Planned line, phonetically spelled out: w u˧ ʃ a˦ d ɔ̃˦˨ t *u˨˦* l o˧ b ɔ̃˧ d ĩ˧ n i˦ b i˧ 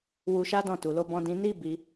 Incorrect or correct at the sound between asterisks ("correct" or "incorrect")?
incorrect